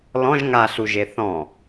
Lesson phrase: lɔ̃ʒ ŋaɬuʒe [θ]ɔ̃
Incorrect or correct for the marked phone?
correct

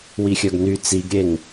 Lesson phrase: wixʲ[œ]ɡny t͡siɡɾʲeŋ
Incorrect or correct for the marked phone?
correct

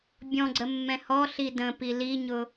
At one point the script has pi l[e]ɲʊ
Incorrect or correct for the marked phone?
incorrect: i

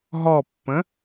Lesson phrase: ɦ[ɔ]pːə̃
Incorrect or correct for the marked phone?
correct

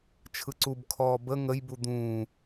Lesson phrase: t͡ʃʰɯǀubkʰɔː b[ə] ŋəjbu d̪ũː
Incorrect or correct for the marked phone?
correct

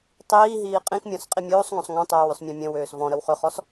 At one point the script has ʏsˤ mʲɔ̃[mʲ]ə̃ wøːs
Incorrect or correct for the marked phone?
correct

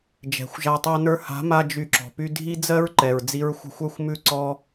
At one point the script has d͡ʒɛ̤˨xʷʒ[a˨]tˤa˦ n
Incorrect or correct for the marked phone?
incorrect: a˧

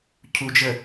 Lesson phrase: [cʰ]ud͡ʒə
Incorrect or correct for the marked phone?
correct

